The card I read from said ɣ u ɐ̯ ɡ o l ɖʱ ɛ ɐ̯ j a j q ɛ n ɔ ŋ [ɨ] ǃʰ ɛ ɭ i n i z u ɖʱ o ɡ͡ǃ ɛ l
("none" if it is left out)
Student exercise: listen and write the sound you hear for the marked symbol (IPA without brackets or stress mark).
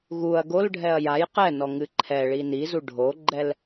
ɨ